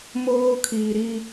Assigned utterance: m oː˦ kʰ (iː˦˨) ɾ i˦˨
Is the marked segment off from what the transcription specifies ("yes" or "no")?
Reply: yes